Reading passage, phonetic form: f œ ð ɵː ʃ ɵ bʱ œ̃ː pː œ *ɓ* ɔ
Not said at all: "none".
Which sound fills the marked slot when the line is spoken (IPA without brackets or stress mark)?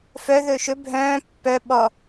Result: ɓ